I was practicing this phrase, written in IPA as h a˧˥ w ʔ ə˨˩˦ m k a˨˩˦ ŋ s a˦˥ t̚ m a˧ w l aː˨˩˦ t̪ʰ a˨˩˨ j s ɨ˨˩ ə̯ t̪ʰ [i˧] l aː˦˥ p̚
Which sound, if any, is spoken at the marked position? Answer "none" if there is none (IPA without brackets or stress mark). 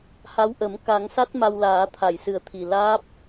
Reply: i˨˩